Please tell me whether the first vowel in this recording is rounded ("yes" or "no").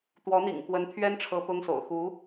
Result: yes